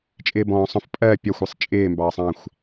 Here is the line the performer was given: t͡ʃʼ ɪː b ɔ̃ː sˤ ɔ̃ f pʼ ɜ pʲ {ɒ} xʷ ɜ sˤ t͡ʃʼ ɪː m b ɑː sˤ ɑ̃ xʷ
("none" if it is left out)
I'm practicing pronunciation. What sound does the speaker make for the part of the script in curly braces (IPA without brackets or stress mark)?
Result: ɒ